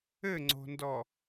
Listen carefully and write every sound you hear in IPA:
ɘŋ͡ǀo̤ndɔ

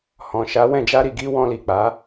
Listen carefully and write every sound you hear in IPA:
hɔ̃˨ʃa˨˦wɛ̃˦˨ d͡ʒa˧ɾi˨ɡi˧ wɔ̃˧li˨k͡pa˨˦

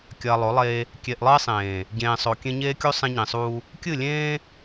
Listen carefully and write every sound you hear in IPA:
kʲɐː˨lˠo˨˦lˠeː˦ | kʲe˨ʔlˠɨ˦ɪ̯sˤẽː˨ | ɟẽː˨sˤo˨kʲẽ˦ ɲeː˦kʲu˦ sˤẽ˦ɲĩ˨sˤuː˦ | kʲɨ˦˨lʲẽː˦

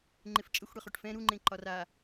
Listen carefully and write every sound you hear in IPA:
ŋ͡ǃɪft͡ʃʼəxʷ ɽɛχoʈfɛ̃ ɾuŋ͡ǃẽ ǃɒra

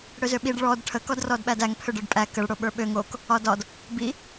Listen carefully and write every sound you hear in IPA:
ɽøzøɓiɖ ɭɔd ʈʰə kɔdrɔdɓædæŋ pʰøɖə˞ɖpʼæ kəɭ ɽoɓə˞ɓøŋ ok | ɒdɒd | bi

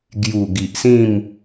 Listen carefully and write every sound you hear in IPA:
ɡju˨˩ ɡi˨ʔsĩ˥˧m

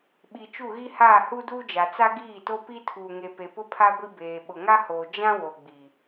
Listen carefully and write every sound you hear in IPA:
ɓi˨t͡ʃu˦˨ɣi˦haː˦˨ hu˦duː˦d͡ʒa˨ t͡sa˦ɡiː˦˨to˦ pi˦tʰuː˨ŋe˨pe˨ pʊ˦pʰa˦ ɡʷi˦beː˨ ɓʊ˨ŋa˦hoː˨ d͡ʒã˦ wo˨ɡ͡bi˨

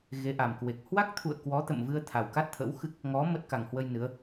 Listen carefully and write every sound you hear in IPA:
ɣe˨˦ʔa˨˩mkwe˨˩k̚ hwa˦˥k̚t̪ʰṵ˧˨ə̯ kwɔ˨˦t̪ə̰˧˨mvɨ˧ə̯ t̪ʰa˨˩wka˦˥t̚t̪ʰə̰˧˥wxɨ˦˥k̚ | ŋɔ˨˦ mə˦˥t̚ka˨˩ŋhwə˧j nɨ˨˦ə̯

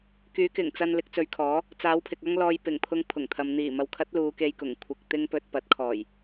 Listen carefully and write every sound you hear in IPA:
kyː˨˥kɪ˨˩ŋt͡sɐ˧n lɪ˨˥k̚t͡sɵ˨˧ɥkʰɔː˨˥ | t͡saː˨˥wpʰɪ˨k̚ɐ˥ŋlɔː˧j pɪ˨˩ŋpʰʊ˨˧ŋ pʰʊ˨˩ŋt̪ʰɐ˨m n̪iː˨˩mɐ˨w kʰɐ˨˥t̚ luː˨˧ke˧jkʊ˨˩ŋ kʷʰɪ˧k̚t̪ɪ˥ŋ pɵ˧t̚pɐ˨˥t̚ kʰɔː˨˩j

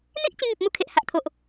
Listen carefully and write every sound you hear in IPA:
n̪i˦ʔ t͡ɕĩ˧ŋi˨p̚mu˧ kʰe˨ʔha˨ʔ t̪ʰo˨ʔ

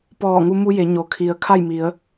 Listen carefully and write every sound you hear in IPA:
pɔː˧˩ŋu˧mu˧je˩˧ ɲo˩kʰi˩˧ə̯ kʰa˥˨jmi˩˧ə̯

